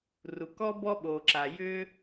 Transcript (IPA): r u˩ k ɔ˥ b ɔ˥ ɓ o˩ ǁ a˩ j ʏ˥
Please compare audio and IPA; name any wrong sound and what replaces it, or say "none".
none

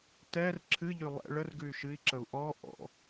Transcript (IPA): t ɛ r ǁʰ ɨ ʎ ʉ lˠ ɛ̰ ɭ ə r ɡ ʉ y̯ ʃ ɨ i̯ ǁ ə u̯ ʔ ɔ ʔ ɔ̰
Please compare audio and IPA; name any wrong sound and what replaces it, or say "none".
none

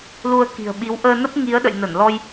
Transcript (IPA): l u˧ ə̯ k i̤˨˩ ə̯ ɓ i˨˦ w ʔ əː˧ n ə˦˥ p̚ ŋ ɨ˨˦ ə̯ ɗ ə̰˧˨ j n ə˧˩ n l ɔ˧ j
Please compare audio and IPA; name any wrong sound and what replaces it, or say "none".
ɨ˨˦ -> i˨˦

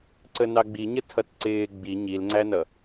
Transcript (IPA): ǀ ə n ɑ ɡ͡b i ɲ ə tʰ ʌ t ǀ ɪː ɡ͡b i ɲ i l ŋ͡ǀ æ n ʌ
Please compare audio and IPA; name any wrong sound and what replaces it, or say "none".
none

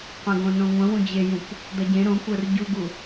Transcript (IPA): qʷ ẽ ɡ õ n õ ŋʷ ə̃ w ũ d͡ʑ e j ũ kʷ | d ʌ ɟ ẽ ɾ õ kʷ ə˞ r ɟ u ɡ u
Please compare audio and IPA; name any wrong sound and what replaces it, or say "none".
none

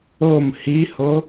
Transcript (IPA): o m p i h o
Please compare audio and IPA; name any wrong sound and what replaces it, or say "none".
p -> h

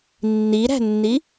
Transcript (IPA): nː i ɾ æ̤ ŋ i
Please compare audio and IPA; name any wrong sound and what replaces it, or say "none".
ŋ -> nː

